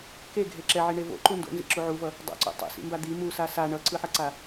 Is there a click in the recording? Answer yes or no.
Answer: yes